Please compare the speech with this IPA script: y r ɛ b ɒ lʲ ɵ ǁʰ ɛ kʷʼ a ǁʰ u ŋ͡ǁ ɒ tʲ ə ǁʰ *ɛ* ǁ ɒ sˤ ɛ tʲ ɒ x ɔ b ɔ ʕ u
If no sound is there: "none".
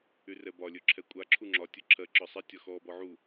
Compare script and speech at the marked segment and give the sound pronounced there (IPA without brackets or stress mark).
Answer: ɜ